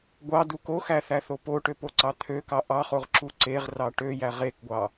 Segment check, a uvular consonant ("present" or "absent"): present